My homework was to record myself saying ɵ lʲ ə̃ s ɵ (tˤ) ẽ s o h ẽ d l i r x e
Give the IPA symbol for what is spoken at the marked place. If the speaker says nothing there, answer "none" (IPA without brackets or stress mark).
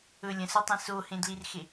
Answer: tˤ